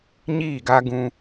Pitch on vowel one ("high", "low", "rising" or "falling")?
falling